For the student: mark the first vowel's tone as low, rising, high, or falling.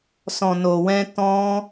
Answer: low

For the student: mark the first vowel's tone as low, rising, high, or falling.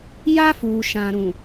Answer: high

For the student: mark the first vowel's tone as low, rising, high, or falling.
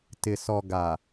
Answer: low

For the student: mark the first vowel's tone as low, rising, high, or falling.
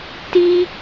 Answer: high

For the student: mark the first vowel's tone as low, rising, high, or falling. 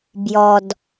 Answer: low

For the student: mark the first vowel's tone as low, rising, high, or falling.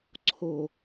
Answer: low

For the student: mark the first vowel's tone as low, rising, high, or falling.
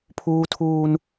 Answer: high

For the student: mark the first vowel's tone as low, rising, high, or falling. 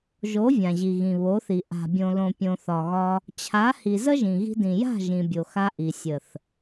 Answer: rising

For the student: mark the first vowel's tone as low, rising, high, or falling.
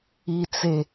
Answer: low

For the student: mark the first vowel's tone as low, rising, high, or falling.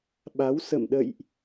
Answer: rising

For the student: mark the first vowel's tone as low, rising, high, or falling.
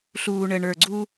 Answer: low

